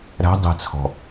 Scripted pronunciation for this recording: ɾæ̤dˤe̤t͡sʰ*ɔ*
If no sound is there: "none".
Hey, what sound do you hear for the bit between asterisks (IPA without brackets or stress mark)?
ɔ̤